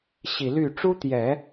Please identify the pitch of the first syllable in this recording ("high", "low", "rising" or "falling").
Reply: low